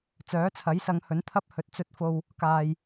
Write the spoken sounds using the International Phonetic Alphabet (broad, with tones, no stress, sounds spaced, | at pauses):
t͡s œː˨˥ t͡sʰ ɐ˨˥ j s ɐ˨˧ ŋ h ɵ˨˥ n t̪ʰ ɐ˥ p̚ h ɵ˨˥ t̚ t͡s ɵ˨ t̚ f o˨ w | k aː˨ j